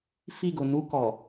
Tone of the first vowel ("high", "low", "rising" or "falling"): falling